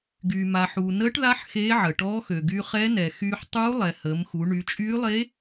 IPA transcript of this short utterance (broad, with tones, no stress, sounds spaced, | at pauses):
ɡ yː˩ m a˩ ħ uː˩ n əː˧˥ ʈ ð a˧˥ ħ x eː˧˥ ʕ ə˩ ʈ ɔː˧˥ x ø˩ ɡ y˧ χ ɛ˧˥ n ɛ˩ x yː˧ ħ tˤ uː˧˥ lˠ ɛ˩ h əː˩˧ m x u˩˧ ɳ y˩˧ t͡ʃʼ yː˧˥ lˠ e˧˥